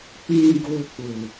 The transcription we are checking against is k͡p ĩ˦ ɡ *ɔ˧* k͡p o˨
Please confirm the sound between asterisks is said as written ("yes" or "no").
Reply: no